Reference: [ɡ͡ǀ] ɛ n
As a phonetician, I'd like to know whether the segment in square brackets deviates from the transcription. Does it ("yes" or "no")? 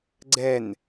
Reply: no